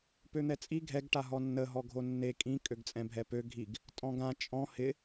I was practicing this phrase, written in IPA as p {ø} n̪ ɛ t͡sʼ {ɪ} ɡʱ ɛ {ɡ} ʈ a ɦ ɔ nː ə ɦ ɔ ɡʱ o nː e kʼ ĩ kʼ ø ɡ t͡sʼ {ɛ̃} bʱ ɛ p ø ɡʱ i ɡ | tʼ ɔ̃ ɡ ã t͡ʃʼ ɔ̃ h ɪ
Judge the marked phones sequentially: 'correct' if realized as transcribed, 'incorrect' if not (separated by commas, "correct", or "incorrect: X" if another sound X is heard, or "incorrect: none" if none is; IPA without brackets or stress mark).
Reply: correct, incorrect: i, correct, correct